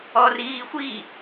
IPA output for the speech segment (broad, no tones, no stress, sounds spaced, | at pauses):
ɔ r iː xʷ i